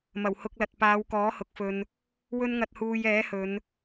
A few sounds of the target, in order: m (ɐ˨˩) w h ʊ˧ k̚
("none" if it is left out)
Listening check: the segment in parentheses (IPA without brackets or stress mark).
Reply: ɐ˨˩